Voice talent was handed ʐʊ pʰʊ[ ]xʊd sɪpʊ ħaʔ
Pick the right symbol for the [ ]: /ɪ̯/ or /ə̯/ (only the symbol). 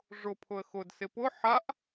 ə̯